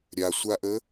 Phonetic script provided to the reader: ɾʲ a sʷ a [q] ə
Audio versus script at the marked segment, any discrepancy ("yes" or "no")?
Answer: yes